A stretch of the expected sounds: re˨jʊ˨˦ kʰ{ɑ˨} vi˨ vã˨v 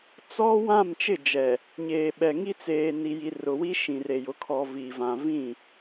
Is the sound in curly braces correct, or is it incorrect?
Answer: incorrect